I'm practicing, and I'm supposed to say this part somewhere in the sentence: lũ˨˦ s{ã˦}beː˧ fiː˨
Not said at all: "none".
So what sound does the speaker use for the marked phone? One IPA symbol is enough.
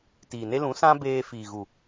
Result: ã˦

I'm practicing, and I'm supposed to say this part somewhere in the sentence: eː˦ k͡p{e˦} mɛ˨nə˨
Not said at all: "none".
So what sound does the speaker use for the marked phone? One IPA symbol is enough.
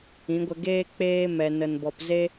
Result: eː˦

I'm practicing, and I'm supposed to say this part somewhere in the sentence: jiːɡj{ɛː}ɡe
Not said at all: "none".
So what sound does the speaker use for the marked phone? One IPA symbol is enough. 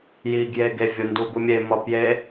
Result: eː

